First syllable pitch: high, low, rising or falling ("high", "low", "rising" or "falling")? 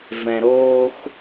low